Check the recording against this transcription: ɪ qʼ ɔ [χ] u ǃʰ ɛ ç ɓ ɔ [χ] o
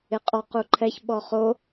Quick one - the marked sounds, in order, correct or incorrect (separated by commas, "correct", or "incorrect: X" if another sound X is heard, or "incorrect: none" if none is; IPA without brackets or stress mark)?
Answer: incorrect: q, correct